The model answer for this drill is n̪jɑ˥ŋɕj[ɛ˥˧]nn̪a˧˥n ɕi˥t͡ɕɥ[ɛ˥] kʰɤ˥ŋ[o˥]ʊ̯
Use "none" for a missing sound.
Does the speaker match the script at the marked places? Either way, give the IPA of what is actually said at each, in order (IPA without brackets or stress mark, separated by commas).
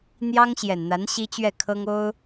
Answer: ɛ˨˩, ɛ˥˩, o˥